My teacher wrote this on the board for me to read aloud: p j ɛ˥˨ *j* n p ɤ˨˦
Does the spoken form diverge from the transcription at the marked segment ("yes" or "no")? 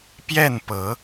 yes